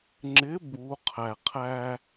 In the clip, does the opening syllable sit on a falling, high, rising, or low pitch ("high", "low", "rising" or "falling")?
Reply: rising